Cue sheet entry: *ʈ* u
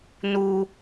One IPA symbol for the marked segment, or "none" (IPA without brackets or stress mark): n